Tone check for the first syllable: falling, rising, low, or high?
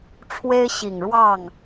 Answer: high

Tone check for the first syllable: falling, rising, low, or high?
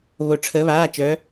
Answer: falling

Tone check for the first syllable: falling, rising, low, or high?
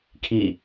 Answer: falling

